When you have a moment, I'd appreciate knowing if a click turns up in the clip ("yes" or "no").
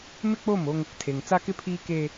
no